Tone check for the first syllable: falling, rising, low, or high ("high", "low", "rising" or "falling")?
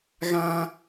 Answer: high